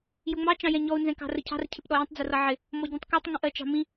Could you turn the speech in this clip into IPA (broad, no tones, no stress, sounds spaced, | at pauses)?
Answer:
j ʊ ŋ͡m ɑ t͡ʃ ɑ̃ j ɛ̃ ɲ ɔ u̯ n z ɛ̃ k ɑ̤ r ə cʰ ɑ̤ r cʰ ɪ p ɗ ɔ j ə̃ tˤ d͡z ʊ r ʌ ʕ ɪ | m ɔ ɟ ĩ tˤ k ɔ tˤ ŋ ə̃ ʔ ɜ t͡ʃ ɑ̤ m ĩ